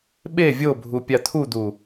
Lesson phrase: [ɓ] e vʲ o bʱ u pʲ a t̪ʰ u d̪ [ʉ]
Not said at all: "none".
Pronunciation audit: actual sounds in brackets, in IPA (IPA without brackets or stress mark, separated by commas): ɓ, u